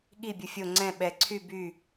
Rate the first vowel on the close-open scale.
close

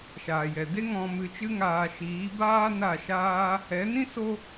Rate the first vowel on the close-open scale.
open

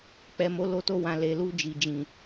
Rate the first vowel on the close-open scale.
mid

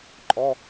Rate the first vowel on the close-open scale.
mid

